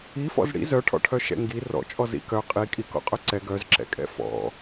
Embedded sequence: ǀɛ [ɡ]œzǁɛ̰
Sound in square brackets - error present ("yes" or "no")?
no